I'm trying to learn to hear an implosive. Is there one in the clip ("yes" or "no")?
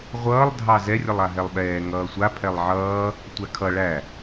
yes